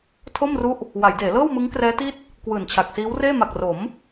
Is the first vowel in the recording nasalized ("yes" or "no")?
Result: no